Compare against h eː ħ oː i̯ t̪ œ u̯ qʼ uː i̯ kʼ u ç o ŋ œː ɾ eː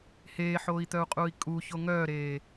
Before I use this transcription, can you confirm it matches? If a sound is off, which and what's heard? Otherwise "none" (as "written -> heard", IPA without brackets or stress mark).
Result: none